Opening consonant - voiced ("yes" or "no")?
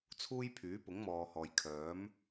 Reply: no